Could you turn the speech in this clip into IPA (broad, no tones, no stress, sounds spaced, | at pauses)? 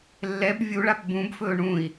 lː ɛ b vʲ u ɭ a p b ũ b f ɵː ɳ ũ i̯